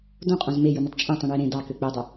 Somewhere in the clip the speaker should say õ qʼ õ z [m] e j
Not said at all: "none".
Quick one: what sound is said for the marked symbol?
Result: m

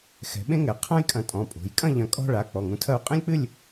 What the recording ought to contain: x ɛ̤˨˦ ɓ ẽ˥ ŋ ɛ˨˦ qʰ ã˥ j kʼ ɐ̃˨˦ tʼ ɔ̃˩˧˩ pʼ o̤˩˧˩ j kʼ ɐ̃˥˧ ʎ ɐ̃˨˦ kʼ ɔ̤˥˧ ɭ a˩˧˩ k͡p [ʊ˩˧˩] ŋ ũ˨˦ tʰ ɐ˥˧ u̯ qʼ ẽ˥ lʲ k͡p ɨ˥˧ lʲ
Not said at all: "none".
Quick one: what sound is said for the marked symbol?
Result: ɔ˩˧˩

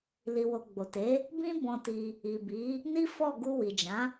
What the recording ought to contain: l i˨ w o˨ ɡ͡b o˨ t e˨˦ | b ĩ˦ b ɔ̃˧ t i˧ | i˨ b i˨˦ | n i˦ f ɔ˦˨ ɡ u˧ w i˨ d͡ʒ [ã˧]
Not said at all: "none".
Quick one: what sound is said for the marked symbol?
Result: ã˨˦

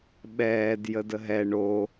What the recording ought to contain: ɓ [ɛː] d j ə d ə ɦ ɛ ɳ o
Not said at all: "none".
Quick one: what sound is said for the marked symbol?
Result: ɛː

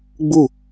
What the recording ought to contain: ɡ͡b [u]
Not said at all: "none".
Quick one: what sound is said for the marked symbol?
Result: u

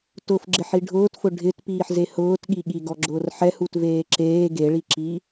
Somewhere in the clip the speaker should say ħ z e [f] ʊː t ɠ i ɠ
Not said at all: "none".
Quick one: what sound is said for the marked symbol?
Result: h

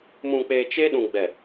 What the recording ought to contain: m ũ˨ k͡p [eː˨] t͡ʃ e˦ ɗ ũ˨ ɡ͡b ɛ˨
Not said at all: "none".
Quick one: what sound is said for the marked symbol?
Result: eː˨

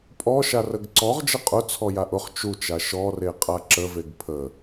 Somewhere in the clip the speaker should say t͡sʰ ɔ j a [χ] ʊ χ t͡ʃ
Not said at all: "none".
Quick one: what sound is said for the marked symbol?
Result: ʔ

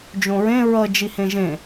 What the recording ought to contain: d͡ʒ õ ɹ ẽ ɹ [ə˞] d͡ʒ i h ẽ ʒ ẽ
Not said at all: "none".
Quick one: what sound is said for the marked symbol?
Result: ʌ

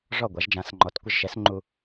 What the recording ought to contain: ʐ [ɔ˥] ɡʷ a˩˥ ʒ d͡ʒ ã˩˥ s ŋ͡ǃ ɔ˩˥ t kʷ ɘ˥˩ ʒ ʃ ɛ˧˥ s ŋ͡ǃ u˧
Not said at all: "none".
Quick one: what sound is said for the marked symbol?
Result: ɔ˥˩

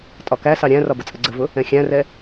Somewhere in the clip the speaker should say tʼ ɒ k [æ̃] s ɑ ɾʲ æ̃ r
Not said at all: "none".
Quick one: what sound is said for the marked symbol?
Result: æ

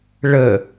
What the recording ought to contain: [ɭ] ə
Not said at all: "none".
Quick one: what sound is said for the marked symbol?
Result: ɭ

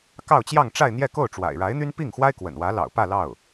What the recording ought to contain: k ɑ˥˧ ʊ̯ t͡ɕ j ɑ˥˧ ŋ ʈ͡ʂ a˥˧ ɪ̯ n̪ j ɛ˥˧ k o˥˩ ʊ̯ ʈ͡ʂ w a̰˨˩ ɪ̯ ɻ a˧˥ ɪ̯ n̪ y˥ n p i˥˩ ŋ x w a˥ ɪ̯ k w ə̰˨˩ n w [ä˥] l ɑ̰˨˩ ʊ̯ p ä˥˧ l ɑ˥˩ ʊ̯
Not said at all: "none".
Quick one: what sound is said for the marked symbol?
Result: ä˧˥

